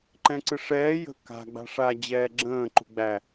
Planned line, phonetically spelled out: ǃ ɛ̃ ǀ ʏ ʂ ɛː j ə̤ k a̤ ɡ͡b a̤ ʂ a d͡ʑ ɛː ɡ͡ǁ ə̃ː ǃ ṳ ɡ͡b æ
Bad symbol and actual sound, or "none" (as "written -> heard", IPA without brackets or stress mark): ʏ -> ɨ